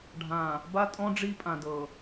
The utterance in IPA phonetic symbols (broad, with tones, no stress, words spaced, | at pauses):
ɖʱã˨ | ba˦tʼɔ̃˦ ɖ͡ʐi˦ pʼã˨dɤ˨